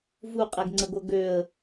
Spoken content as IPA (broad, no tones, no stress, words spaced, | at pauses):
vuqʼɛɡŋ͡ǀəɡʷɤ ɡøə̯